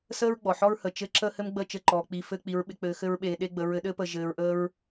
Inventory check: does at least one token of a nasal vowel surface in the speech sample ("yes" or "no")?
no